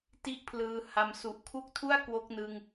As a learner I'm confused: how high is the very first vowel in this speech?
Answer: high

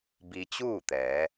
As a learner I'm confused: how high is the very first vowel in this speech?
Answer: high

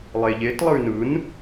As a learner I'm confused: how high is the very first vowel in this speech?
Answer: mid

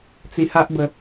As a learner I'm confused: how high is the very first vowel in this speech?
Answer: high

